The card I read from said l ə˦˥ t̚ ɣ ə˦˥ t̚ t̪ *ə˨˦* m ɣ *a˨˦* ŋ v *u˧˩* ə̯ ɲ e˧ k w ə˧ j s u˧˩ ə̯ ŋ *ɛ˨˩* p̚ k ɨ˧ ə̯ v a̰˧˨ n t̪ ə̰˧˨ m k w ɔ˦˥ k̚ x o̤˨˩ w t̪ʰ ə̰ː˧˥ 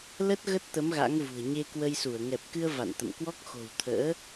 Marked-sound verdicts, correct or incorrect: correct, incorrect, incorrect, correct

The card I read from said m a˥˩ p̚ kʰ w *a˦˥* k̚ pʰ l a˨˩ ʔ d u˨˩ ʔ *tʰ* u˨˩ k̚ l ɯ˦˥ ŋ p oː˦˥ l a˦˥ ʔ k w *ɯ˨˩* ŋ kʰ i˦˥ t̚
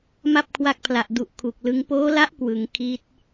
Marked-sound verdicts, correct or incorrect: correct, incorrect, incorrect

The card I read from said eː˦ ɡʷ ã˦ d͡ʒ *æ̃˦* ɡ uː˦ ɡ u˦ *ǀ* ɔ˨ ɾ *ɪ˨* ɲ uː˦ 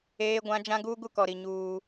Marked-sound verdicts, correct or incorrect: incorrect, incorrect, incorrect

